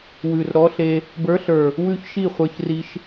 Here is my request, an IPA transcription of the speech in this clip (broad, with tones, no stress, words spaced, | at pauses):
wʉ˨˩rɾɔ˧˥ɬe˧ | bə˞˧˥ɬə˞˨˩ | wʉ˥˨çʃi˥˨χʷə˞˧çri˧ʃ